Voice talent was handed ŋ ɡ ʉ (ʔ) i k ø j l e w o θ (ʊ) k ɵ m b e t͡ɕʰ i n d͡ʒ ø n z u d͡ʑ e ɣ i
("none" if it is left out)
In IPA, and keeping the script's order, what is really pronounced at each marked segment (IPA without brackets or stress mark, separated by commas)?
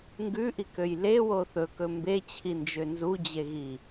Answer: ʔ, ɵ